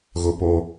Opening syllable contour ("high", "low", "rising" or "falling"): high